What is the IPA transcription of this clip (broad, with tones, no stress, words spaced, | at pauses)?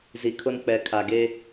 zi˨kʰʊ˦n k͡pɛ˨˦ kʰa˨ɡe˦